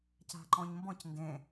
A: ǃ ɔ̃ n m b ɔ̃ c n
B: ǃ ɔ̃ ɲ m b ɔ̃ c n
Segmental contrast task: B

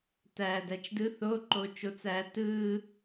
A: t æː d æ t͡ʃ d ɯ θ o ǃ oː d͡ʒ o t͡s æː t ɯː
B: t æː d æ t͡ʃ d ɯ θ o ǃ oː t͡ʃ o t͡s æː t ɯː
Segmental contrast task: B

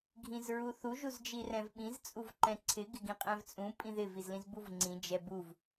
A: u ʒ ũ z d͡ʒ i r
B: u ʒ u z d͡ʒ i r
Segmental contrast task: B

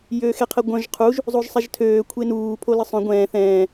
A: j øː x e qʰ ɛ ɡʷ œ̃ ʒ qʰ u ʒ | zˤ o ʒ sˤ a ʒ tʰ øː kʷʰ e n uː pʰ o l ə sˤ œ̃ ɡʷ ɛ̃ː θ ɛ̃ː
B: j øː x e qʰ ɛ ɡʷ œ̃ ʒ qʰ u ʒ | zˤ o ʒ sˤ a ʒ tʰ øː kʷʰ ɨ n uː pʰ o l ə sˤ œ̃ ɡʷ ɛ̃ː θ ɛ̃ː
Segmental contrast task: A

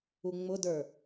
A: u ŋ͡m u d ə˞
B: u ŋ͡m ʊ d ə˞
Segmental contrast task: B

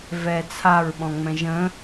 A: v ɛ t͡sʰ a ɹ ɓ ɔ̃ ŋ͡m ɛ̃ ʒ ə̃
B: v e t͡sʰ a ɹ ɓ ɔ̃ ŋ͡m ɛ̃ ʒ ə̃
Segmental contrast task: A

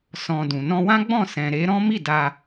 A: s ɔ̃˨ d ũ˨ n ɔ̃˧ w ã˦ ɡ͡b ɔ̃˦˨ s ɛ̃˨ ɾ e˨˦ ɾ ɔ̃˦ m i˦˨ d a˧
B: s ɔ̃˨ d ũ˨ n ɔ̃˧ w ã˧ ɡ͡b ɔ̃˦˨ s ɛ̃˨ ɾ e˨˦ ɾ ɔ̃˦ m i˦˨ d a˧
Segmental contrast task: A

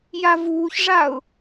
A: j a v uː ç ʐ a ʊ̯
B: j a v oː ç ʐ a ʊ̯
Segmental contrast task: A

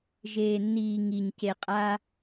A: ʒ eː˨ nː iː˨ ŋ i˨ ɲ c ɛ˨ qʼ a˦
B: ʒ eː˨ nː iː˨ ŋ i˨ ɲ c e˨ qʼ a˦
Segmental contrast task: B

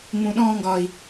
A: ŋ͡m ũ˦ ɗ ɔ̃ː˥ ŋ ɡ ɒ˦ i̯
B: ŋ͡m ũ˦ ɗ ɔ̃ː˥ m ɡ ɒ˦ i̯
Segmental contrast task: A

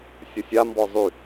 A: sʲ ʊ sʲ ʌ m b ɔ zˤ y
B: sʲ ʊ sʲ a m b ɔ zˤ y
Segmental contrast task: B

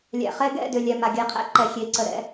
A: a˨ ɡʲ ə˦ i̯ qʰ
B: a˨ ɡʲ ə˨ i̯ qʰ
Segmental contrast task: B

